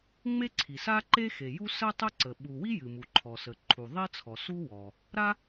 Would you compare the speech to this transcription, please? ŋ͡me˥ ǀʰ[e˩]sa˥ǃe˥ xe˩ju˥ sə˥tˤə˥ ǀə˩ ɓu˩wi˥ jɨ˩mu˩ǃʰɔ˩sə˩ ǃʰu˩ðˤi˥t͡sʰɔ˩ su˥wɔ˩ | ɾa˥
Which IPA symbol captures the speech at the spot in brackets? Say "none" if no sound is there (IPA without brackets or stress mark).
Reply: i˩